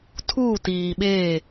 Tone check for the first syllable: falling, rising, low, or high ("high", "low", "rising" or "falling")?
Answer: falling